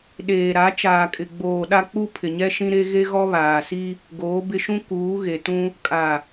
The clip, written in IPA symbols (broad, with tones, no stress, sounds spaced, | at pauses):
ɗ eː˨ ɾ a˨˦ t͡ʃ aː˨ kʼ ɪ˨ ɡ͡b oː˨ ɗ a˦ k͡p u˦ pʰ ɪ˨ ɲ ɛ˦ ʃ ĩ˦ ɾ e˦ ɣ e˦ ɣ ɔ˦ β aː˨ s i˦ | ɡ oː˨˦ b ɪ˦ ʃ ũ˦ k uː˨˦ ɣ e˨ t ũ˦ | kʼ a˨